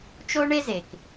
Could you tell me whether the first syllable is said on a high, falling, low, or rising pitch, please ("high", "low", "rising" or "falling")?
high